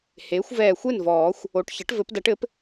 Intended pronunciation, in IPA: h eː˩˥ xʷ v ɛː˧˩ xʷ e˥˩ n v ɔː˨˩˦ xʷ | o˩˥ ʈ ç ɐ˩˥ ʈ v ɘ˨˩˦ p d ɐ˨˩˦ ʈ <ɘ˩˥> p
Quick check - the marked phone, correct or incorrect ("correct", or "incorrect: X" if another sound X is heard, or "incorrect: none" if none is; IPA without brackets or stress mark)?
correct